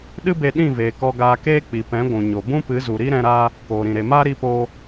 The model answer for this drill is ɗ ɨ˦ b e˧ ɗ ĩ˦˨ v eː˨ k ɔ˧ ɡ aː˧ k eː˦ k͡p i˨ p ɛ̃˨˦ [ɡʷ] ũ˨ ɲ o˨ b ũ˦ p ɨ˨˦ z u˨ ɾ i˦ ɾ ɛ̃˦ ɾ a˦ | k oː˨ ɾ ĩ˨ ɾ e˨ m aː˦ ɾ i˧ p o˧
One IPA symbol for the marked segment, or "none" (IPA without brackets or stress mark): ɡʷ